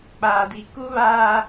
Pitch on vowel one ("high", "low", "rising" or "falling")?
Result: low